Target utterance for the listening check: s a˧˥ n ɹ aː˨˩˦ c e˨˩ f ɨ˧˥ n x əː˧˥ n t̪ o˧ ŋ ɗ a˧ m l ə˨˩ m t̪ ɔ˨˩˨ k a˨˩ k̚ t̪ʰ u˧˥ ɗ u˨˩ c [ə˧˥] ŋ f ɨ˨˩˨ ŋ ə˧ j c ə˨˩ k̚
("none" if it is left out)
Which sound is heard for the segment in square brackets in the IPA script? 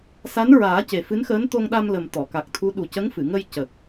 ə˧˥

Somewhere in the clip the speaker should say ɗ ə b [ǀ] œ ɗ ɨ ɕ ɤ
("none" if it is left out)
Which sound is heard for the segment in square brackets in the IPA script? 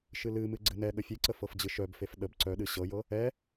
ǀ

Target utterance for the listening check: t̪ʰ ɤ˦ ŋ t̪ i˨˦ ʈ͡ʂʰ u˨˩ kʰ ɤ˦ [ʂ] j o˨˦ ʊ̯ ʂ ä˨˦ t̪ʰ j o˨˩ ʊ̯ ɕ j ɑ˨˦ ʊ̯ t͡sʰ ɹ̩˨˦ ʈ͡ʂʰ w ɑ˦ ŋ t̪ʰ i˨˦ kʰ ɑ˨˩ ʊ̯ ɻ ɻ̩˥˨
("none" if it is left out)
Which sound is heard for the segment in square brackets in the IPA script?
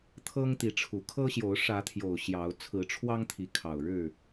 ɕ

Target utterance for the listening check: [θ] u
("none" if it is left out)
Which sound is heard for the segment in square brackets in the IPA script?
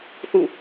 θ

